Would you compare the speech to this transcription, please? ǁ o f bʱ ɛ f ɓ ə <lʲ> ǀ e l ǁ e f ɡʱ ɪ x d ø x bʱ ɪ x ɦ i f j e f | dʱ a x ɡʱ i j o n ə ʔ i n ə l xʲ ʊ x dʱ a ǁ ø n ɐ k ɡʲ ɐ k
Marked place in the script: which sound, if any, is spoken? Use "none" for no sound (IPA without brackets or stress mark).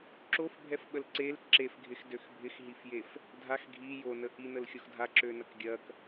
l